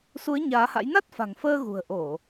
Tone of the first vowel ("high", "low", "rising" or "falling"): rising